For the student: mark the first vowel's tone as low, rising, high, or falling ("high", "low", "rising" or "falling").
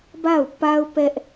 falling